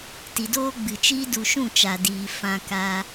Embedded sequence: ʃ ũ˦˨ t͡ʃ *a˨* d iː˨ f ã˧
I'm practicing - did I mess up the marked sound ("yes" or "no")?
no